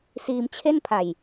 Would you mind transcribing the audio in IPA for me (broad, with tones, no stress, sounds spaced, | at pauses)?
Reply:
s iː˧ m t͡ɕʰ e˥˩ n pʰ a˨˩ j